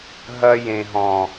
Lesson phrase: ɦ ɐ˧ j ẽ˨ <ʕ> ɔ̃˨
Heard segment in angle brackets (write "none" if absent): ɦ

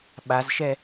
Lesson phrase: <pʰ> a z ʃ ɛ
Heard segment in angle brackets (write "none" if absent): ɓ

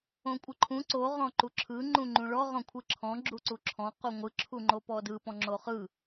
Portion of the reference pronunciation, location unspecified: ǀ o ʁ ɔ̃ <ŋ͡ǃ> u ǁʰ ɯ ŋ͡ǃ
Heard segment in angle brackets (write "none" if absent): ǃ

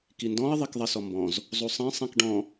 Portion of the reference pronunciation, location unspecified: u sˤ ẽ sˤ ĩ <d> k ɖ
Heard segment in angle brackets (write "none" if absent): none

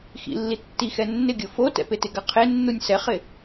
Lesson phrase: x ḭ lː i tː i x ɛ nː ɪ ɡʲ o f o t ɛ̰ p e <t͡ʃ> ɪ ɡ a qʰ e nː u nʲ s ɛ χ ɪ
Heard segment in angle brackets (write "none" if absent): t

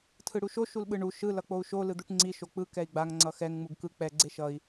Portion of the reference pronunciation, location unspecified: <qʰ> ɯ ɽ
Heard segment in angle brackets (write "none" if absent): tʰ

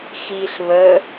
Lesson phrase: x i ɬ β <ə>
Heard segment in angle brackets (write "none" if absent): ə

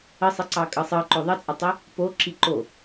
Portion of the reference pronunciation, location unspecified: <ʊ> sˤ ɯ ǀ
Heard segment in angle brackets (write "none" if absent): ə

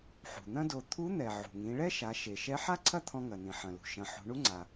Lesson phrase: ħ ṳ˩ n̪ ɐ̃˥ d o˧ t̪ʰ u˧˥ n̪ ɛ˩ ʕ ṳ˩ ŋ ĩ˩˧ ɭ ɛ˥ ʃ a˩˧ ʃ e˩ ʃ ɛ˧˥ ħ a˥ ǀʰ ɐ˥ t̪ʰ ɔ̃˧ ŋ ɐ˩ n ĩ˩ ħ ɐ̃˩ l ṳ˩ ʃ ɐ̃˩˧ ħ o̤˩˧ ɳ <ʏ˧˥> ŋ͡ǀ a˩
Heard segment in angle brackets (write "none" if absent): u˧˥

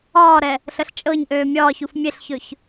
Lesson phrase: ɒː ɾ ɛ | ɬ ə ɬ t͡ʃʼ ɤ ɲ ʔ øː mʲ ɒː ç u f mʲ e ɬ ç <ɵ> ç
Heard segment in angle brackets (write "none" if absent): ɵ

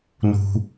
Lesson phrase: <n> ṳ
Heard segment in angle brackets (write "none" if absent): n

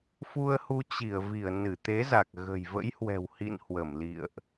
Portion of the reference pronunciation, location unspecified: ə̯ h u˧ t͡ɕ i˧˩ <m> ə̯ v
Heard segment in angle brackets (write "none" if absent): none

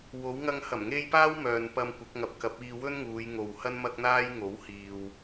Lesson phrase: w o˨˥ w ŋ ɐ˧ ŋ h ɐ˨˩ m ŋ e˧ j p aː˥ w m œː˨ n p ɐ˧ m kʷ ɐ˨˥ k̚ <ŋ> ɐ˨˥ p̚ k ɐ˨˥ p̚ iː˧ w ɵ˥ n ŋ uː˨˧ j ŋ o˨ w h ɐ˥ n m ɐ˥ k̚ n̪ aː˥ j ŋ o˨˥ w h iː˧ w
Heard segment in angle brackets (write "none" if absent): ŋ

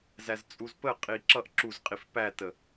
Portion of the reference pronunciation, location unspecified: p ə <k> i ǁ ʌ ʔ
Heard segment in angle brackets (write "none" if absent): qʼ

